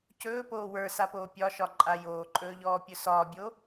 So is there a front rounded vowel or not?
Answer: no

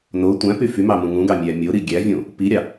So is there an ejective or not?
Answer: no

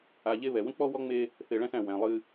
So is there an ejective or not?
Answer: no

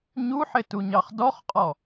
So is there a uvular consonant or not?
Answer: yes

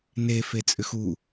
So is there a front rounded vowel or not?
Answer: yes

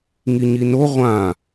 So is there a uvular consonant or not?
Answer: yes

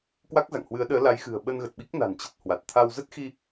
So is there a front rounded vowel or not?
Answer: no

